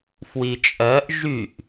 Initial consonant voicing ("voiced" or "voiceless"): voiceless